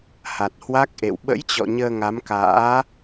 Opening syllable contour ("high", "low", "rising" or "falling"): low